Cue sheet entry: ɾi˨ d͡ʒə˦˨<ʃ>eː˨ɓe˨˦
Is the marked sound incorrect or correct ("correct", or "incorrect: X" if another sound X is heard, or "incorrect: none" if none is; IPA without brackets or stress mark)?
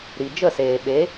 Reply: incorrect: s